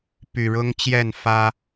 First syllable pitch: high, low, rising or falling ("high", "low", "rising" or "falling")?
low